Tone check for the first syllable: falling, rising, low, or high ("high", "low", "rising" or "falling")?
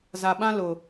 low